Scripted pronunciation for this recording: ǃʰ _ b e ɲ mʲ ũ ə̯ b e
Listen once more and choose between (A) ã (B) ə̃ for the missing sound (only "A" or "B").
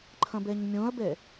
B